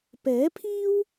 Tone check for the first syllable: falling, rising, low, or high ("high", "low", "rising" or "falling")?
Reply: rising